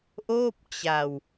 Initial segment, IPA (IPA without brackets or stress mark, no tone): ʔ